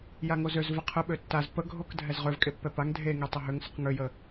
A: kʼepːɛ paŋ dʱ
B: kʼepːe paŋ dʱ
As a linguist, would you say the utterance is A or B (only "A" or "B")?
A